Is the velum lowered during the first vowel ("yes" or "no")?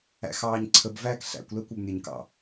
no